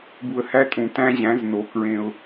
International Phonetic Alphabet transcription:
bu˨ə̯hæ˦tʼũ˨ tæ̃˦ʑæ̃˨˦zno˨ kɹẽ˦ʊ̯

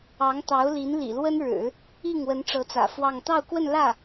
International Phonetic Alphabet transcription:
ɑ˧˥ŋt̪ɑ˧˥ʊ̯li˧˥n lḭ˨˩lwə˥nɻɻ̩˨˩˦ | i˥˩ŋwə˧˥n ʈ͡ʂɤ˧˥t͡sä̰˨˩fwɑ˥˧ŋ t̪ɑ˥˧ʊ̯kwə˥˧n lä˥˩

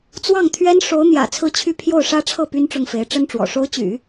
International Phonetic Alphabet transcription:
t͡swɑ˥˩ŋt̪ʰɥɛ˥n ʂo˧˥ʊ̯ n̪jä̰˨˩ t͡sʰɹ̩˥˧t͡ɕʰy˥˧ pʰjo˥˩ʊ̯ʂä˥ʈ͡ʂʰɤ˥˩ py˥nʈ͡ʂʊ˥˩ŋfe˧˥ɪ̯ ʈ͡ʂə˥nʈ͡ʂwɔ̰˨˩ ʂo˧˥ʊ̯t͡ɕy̰˨˩˦

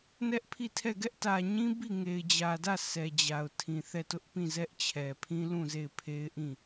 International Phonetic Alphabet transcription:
nɛ˦ʔ pʰi˦˨tʰɛ˦˨ ɡɛ˦ʔtä˨ɲĩ˦ bi˦˨ŋe˨ɪ̯d͡ʑä˨dä˦˨ sɛ˨ d͡ʑa˨ʊ̯tʰĩ˨θɛ˦˨ tʊ˦ʔpĩ˦˨ zɛ˦ʔt͡ɕʰɛ˨pʰĩ˦ lũ˦˨ze˦˨ɪ̯pʰe˦ɪ̯ʔĩ˦˨

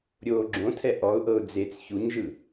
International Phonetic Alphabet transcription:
ɾʲoːɡ͡ǁõtʰɛ ʔɔʊ̯ʔɤʊ̯ d͡zet͡s çuɲʒɯ

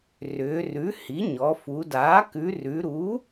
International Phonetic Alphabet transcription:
rʏː˩˧rʉ˩˥hi˩˥ ɲɔ˩˧fu˩˧daː˩˥ kʉ˩˧rʉ˩˧ɾu˩˥

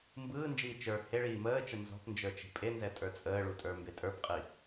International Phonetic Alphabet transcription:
mbɯːnd͡ʒiː t͡ʃə˞ heɭiː məːt͡ʃə nzɔ̤pnd͡ʒə˞t͡ʃi̤ pʼenzɛtʼə˞ t͡sʼəːɭutʼə˞mbe tʼə˞pqʼi

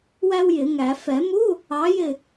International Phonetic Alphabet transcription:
wæ˥wjɪ˨˩˦ŋæ˨˩˦ fɛ˨˩˦mu˧˥˧ | ɑ˨˥jɪ˦˨

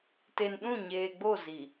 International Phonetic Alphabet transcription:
te˨nɗũ˦˨ɲeː˨ɡ͡bo˦˨ zi˨

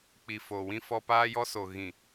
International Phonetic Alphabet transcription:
k͡pi˨ foː˨wĩ˦fɔ˦ paː˦jɔ˦so˨ ɣĩ˨

